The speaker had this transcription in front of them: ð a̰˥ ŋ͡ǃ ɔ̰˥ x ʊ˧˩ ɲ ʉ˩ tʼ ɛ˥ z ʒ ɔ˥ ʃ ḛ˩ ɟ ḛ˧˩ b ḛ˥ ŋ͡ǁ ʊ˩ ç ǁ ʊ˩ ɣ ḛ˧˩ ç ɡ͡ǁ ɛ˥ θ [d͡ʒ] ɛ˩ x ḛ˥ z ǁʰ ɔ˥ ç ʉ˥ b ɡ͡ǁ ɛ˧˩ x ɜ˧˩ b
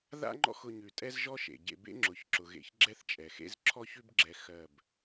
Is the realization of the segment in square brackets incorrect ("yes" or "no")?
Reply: yes